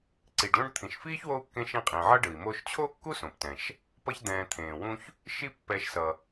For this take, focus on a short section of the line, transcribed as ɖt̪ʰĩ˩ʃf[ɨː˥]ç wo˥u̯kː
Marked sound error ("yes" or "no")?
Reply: yes